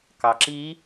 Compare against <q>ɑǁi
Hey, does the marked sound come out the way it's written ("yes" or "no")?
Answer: no